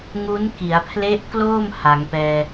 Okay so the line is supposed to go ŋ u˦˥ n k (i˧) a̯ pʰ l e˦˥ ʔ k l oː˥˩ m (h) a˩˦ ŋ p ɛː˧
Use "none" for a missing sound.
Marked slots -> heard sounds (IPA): i˩˦, h

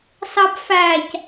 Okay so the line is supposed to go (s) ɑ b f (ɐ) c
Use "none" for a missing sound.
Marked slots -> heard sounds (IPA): s, æ

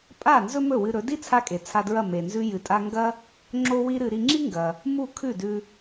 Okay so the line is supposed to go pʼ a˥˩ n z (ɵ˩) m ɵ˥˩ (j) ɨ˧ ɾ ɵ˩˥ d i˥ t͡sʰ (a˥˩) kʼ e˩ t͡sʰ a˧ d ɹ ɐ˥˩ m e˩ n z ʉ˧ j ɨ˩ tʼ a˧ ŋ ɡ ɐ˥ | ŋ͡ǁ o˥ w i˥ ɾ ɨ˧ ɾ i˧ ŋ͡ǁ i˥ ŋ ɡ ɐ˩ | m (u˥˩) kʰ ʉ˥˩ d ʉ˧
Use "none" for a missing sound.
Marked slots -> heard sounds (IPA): ɵ˥, w, a˥, u˥˩

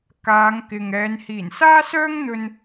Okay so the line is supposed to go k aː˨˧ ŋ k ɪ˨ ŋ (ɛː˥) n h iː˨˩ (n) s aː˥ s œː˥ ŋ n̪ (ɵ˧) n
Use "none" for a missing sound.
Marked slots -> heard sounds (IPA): ɛː˨˧, n, ɵ˧

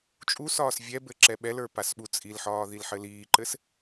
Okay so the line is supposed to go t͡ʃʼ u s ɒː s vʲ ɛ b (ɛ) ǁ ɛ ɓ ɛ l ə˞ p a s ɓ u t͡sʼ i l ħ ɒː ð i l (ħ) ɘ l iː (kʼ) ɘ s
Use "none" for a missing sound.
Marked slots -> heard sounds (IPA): ɘ, ħ, ǃ

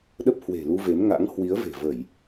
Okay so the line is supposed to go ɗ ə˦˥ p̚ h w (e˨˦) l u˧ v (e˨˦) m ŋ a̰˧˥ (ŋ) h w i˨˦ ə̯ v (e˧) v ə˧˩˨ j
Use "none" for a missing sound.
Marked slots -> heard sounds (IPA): e̤˨˩, e˨˦, ŋ, e̤˨˩

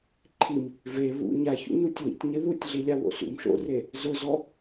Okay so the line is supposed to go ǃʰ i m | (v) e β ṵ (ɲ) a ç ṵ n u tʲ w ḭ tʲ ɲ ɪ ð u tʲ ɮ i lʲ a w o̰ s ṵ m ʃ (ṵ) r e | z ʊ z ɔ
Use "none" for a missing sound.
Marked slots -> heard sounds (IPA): v, ɲ, o̰

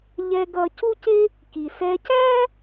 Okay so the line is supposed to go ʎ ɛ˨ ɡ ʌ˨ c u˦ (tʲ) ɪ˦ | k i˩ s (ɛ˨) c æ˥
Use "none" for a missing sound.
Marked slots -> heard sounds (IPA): c, ɛ˨

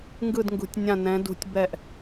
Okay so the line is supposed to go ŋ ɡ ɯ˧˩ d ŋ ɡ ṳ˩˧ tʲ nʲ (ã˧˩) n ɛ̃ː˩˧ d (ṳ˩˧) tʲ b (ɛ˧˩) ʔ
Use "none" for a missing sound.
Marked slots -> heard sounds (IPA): ã˧˩, ṳ˩˧, ɛ˧˩

